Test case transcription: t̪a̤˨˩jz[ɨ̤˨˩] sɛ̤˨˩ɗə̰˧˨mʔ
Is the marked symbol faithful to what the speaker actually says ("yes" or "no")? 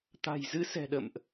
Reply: no